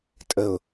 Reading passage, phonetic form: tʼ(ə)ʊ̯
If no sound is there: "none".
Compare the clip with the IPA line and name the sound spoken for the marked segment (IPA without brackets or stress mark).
ə